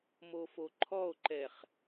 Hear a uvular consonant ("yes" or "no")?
yes